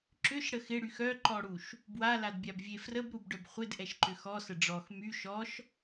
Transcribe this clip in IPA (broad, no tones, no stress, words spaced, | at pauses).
ǁʏʃɽə xɪɽyx œǃɔɽuʃ | bwaladbʲabvʲe frəbɾubɖœb χʷɪdʔɛʃǃʏ xɔsə ɖ͡ʐɔx my ʃɔʃ